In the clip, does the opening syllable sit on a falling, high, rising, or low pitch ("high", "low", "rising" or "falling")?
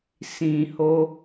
low